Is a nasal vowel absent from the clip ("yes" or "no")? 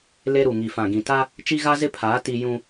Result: no